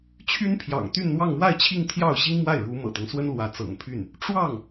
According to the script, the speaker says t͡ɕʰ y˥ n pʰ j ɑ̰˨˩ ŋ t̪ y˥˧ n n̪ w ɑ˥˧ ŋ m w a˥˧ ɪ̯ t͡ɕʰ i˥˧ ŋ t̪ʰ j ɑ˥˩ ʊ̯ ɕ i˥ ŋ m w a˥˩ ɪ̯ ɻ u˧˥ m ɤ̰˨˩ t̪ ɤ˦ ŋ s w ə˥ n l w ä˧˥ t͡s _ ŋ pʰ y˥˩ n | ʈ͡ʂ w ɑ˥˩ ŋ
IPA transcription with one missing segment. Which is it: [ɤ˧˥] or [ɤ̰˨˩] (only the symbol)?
ɤ̰˨˩